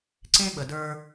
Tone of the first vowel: high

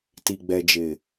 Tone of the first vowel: low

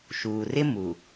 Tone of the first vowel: low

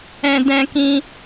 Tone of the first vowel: high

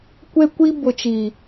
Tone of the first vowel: high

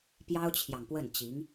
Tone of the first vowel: high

